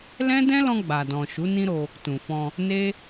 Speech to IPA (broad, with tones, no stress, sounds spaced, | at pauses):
l ɛ̃˦ d ɛ̃˦ l ɔ̃˧ ɡ͡b a˨ d ɔ̃˨ ʃ u˨˦ n ĩ˦ ɾ o˧ | t ũ˨ f ɔ̃˧ | n e˦